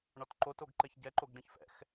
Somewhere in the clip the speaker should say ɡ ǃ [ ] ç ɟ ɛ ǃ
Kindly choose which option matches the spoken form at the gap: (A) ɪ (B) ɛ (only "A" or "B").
B